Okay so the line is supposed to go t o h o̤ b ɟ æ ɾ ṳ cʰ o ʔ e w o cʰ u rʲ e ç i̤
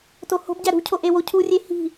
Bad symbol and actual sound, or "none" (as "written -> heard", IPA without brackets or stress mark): ç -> h